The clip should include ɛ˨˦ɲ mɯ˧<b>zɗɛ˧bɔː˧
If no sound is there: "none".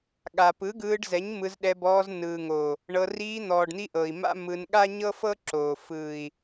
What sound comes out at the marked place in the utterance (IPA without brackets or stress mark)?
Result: none